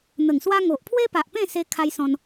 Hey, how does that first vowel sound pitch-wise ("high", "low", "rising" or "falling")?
low